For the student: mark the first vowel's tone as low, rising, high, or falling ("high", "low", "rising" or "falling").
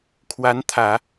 rising